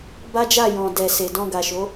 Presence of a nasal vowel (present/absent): present